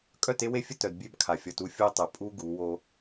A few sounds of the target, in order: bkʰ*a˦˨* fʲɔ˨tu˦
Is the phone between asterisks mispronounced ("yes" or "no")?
yes